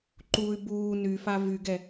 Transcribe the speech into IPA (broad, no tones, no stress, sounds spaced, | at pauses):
ǃ uː y̯ b uː n y f a v y ɡ ɛ